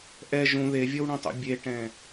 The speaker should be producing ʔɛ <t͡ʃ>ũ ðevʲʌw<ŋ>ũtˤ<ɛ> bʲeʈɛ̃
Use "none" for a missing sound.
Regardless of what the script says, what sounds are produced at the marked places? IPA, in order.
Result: ʒ, ɳ, ɛ̰

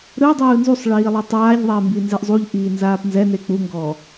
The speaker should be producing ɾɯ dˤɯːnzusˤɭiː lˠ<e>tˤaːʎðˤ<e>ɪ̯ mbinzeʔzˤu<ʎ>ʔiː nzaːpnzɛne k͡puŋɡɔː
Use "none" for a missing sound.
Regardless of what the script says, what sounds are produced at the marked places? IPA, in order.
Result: ɛ, ɛ, ʎ

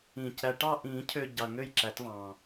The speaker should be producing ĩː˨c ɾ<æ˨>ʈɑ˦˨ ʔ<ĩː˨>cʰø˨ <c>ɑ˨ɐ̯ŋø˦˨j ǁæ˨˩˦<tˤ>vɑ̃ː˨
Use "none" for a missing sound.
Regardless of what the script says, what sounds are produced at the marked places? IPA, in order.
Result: æ˨, ĩː˨˩˦, ɟ, t

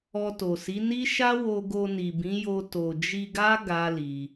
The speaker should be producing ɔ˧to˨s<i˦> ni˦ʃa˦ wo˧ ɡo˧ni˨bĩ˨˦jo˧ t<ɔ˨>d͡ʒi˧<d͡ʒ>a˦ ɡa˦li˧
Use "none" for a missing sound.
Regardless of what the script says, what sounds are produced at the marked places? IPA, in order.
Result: i˨˦, o˨, ɡ

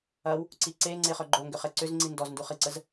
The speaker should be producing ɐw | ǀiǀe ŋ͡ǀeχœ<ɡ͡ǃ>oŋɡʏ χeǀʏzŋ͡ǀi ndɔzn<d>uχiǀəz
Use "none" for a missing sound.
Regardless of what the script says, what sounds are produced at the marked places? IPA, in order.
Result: ɡ͡ǃ, d

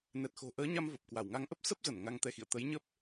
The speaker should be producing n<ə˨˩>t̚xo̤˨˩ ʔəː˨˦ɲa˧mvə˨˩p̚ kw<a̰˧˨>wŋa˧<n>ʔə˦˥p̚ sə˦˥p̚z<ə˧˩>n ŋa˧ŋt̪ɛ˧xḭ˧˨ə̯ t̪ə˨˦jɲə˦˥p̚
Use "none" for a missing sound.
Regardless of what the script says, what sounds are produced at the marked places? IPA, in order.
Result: ɛ˨˩, a˧˩, ŋ, ə˧˩

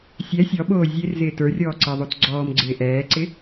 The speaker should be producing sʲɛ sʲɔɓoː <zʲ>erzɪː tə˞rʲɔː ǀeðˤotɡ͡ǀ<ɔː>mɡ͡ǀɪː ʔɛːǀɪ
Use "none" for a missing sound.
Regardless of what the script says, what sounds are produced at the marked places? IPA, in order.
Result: zʲ, ɔː

